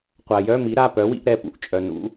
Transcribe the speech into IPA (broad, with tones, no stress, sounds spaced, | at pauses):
qʷ a˩ j œ˧˥˧ m i˩˥ ɾ a˩˧˩ p œ˩˥ w ḭ˧˥ ʔ ɾ ɛ˩˧˩ p ṵ˧˥ ʔ t͡ʃʼ œ˩ n ṵ˩˥